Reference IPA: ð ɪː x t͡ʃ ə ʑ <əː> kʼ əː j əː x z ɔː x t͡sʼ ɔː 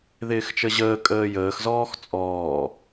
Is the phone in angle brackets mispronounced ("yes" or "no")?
no